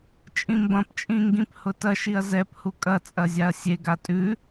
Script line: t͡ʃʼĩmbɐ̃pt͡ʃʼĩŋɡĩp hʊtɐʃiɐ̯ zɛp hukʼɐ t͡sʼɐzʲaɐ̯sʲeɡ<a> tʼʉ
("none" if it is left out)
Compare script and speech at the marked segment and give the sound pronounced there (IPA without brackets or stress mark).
a